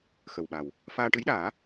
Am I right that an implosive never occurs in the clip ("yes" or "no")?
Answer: no